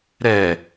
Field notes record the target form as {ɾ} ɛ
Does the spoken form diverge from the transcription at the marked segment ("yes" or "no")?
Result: no